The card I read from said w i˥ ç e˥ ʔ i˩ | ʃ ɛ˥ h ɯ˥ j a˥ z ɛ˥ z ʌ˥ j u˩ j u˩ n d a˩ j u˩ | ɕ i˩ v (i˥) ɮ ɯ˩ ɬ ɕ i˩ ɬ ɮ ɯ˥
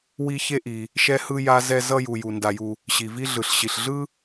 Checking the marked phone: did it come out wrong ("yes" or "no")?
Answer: no